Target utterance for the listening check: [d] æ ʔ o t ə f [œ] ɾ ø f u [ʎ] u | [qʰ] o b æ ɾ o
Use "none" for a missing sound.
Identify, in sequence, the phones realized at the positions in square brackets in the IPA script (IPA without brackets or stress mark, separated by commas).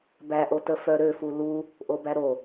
b, œ, l, ʔ